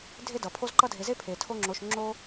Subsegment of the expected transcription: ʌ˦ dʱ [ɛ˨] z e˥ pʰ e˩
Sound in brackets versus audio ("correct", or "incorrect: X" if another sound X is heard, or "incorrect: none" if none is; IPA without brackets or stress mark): incorrect: e˨